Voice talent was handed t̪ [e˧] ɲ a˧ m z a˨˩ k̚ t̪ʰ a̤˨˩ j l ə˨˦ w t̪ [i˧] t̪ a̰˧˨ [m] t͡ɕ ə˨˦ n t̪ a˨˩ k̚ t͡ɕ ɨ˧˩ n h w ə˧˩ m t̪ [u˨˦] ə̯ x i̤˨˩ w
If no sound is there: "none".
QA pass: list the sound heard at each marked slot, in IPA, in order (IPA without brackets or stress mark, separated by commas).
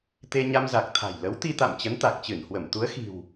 e˧, i˧, m, u˨˦